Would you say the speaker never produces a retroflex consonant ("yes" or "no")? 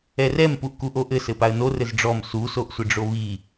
no